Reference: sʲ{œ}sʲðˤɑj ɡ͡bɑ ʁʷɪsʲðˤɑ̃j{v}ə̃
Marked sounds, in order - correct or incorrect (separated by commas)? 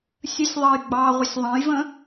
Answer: incorrect, correct